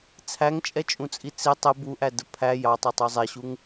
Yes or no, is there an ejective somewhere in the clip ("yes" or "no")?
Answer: yes